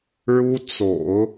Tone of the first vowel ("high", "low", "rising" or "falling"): high